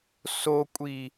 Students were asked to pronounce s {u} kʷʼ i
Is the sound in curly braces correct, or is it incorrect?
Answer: incorrect: o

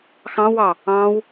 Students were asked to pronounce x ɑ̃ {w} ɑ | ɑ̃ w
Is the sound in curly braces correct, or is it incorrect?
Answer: correct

